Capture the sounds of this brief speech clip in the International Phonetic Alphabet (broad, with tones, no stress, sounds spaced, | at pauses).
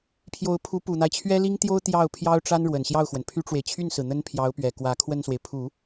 pʰ j o˧˥ ʊ̯ pʰ u˧˥ p u˨˩ n̪ a˦ ɪ̯ t͡ɕʰ ɥ ɛ˥ l i˥ ŋ t̪ j o˥ ʊ̯ t̪ j ɑ˥˩ ʊ̯ pʰ j ɑ˥ ʊ̯ ʈ͡ʂ a˥ n ɻ w ə˨˩ n ɕ j ɑ˥˩ ʊ̯ x w ə˩ n pʰ y˥ ʈ͡ʂ w e˨ ɪ̯ t͡ɕʰ y˥˩ n s ɹ̩˩ n̪ ə˥ n pʰ j ɑ˧˥ ʊ̯ p ɥ ɛ˨˩ k w ä˧˥ kʰ w ə˥˩ n s w e˩ ɪ̯ pʰ u˨˩˦